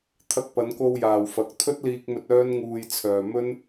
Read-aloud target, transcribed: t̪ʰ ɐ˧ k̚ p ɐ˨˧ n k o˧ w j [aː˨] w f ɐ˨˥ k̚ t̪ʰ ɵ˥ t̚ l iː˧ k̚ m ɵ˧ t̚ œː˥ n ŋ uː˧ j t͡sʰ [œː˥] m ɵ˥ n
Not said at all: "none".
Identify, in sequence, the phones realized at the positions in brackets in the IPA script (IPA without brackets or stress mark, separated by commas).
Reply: aː˨, œː˨